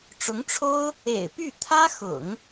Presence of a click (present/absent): absent